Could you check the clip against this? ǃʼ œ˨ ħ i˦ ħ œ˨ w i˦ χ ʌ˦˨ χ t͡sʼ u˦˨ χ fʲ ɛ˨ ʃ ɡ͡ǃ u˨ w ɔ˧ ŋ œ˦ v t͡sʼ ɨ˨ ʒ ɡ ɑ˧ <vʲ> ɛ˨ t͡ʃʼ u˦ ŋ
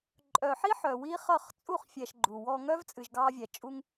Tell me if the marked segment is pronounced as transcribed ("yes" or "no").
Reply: yes